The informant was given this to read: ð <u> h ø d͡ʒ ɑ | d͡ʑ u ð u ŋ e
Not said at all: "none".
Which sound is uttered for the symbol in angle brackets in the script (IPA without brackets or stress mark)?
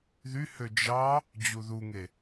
y